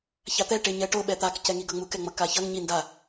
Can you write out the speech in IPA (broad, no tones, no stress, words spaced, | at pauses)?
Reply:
çat̪ɛ ʈeɲɛʈo ɓɛt̪ak cɛŋiɡʌŋ͡muk ɛŋ͡mʌkaçʌŋ ɲi nda